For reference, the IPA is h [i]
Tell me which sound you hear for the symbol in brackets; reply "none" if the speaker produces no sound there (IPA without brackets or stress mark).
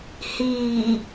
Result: iː